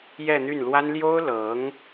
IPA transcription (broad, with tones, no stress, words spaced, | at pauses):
jɛ˥˧n̪y˥˩nlwa˥n ljo˥ʊ̯lɤ˧˥ŋ